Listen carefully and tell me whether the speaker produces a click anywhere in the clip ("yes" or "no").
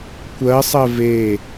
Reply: no